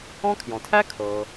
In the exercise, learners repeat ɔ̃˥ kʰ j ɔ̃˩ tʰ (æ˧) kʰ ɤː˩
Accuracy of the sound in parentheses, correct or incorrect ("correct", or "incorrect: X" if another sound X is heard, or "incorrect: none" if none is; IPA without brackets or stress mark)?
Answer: incorrect: æ˥